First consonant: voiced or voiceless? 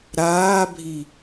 voiced